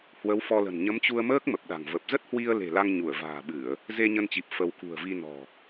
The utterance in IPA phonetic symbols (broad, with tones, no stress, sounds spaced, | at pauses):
h w ə˨˦ w f ɔ˧ l ə̤˨˩ n ɲ ə˨˦ m t͡ɕ u˧ ə̯ m əː˦˥ k̚ m ə˨˩ p̚ ɗ a̤˨˩ ŋ v ə˨˩ p̚ z ə˦˥ t̚ h w i˧ ə̯ l e̤˨˩ l a˧ ŋ ɲ u˧˩ ə̯ v a̤ː˨˩ ɓ ɨ˧˩˨ ə̯ | z e˧ ɲ ə˧ n t͡ɕ i˨˩ p̚ f ə˧ w k ṳ˨˩ ə̯ v i˧ n ɔ̤˨˩